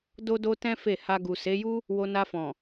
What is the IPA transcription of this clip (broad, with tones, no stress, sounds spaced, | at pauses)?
d o˦ d o˦ t ɛ̃˦ f e˦˨ h a˧ ɡ u˨ s e˨˦ j u˦ | w o˧ n a˧ f ɔ̃˨